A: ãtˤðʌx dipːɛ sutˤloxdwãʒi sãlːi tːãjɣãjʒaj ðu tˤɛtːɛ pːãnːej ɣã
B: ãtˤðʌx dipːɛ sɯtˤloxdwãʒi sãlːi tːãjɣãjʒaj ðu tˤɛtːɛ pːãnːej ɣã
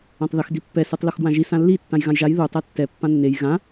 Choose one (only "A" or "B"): B